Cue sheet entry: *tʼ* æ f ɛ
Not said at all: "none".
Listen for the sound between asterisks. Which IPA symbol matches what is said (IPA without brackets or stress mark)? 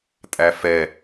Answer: tʼ